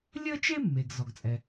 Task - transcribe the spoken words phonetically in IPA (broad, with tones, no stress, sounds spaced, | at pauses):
lʲ ə˥ t͡ʃ e˥ mː e˩ ɡ z ɔ˩ ɡ t͡sʼ ɛ˩